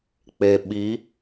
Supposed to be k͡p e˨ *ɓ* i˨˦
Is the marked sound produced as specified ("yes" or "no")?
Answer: yes